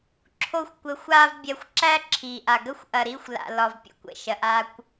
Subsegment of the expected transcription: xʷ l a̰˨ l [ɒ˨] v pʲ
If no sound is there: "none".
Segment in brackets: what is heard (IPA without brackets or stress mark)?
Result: ɒ˨